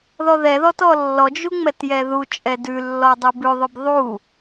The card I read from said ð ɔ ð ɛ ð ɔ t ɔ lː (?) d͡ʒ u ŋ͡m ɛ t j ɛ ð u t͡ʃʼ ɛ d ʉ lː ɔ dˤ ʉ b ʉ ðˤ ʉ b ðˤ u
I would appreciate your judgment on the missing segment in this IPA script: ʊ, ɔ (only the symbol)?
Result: ɔ